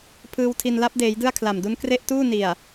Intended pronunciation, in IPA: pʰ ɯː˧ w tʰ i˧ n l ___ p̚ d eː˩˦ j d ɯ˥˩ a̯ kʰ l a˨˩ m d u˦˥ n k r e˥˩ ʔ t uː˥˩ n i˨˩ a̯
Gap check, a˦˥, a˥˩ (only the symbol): a˦˥